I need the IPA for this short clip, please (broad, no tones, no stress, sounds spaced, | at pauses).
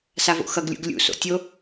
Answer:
s a v o̰ x ʌ ɡ lʲ ṵ ɡ lʲ ṵ s o̰ tʲ o